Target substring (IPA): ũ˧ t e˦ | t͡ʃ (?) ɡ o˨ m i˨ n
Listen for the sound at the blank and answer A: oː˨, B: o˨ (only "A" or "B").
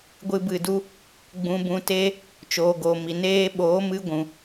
A